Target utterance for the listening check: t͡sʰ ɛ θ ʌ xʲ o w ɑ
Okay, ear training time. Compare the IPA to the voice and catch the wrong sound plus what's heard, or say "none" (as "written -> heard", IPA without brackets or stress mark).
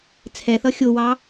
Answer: none